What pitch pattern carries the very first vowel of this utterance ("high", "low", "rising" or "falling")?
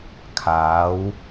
rising